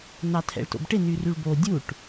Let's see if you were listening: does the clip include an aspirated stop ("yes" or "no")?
yes